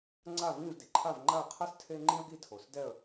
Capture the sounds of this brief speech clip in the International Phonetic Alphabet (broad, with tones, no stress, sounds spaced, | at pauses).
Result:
ŋ͡ǀ a˥˨ v ĩ˥˨ v d i˩ ǃʰ a˥˨ v ŋ͡ǃ a˥˨ ə̯ qʰ a˥ s tʰ e˥ ŋ͡ǃ ĩ˥ ə̯ ɡ i˥˨ tʰ o˩˧ s d ɛ˥˨ ə̯